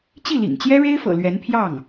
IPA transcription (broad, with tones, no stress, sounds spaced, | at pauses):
t͡ɕ i˥˩ l ḭ˨˩ ŋ t͡ɕ j ɛ˥ ɻ e˥ ɪ̯ f ɤ̰˨˩ l ɥ ɛ˧˥ n pʰ j ɑ˥˩ ŋ